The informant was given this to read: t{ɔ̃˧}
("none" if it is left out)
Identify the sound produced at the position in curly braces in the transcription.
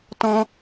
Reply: ɔ̃˧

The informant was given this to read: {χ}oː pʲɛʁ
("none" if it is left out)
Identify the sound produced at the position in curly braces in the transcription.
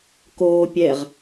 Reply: k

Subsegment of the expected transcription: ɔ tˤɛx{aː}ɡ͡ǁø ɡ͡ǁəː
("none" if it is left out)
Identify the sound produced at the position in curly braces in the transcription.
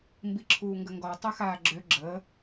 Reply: aː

